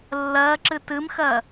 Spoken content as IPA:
lːɜǁɨ tɨmxɜ

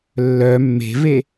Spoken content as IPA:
lːœ mːe̤ve

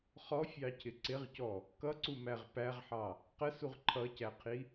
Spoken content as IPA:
χɔfʲɑcʰɪ ǀɪʁcɔ | kʌǀumæʁ pæʁħɑ | qəsuʁ ǃʰʌcæqʰi

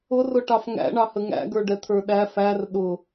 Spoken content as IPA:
ʊrʊʈɑf ŋæ̰ɳɑhə ŋæ̰ɡə˞ɖɛ t̪ʰə˞ɗæ fær ɗʊ

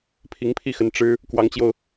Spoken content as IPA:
pʰi˧˥ŋpʰi˥˩xə˧˥n ʈ͡ʂɻ̩˥ | kwɑ˧˥ŋt͡ɕjo˧ʊ̯

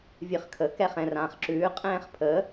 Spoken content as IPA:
vʲɨχkʰə kɛχɛ̃rãːχǁʉː qʼɛ̃ːχpʰə

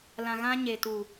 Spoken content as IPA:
lã˨ ɣã˦ɲe˨ tu˨

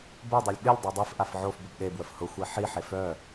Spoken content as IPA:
bodˤœlʲ ɠɪlʲ dˤœdˤifʔaf ʕofbʊb ɗebwəf hʊxʷe ħiħef œ

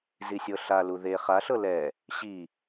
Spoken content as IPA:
zisʲɤɬalu ðe χaɬɤ lɛ | ɕi

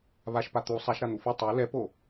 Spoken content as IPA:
βaʃpa t̪u sˤaʃɾan̪u fʌ tˤa lɛpo

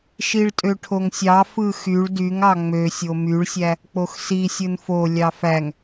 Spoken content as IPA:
ʃiɭtʼøʈʰoŋsʲɑ fɯxyɭ dyŋɑ ŋ͡mø sʲomyɭsʲæ | k͡poxsisʲɯn fo lʲɑfæŋ

